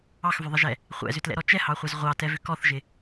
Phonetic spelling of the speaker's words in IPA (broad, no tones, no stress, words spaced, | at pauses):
ɑxvʏðˤɪʒɛ | χʷɛ̰zʏtlɛ̰ɾɔ t͡ʃɛhɑχʷɛz ʁʷɑtɛvʏ kɔθʒɪ